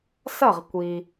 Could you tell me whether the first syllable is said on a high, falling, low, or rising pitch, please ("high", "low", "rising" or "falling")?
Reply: falling